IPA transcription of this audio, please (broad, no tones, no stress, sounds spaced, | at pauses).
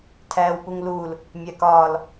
tʰ æː w p u ŋ l uː l | mʲ æ k ɒː l